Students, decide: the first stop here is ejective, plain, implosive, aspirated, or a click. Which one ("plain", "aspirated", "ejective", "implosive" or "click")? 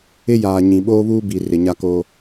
implosive